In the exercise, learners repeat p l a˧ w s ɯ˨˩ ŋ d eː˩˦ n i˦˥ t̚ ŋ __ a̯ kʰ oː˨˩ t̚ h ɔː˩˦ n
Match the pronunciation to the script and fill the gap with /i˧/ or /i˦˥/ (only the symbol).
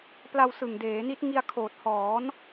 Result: i˧